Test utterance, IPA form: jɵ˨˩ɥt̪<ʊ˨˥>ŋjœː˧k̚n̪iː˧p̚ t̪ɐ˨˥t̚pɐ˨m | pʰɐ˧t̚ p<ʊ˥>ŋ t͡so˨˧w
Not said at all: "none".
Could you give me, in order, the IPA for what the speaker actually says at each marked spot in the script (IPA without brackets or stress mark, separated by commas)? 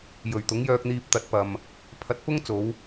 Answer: ʊ˨˥, ʊ˥